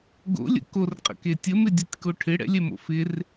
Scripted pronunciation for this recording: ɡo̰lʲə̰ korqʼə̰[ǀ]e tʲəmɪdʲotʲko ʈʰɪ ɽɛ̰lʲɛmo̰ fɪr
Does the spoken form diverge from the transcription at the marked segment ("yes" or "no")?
yes